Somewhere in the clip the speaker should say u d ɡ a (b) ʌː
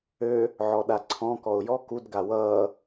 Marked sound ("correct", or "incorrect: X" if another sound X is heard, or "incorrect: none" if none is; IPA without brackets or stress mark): incorrect: w